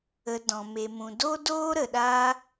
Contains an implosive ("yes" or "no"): yes